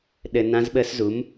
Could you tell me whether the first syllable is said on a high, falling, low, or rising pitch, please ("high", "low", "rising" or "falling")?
low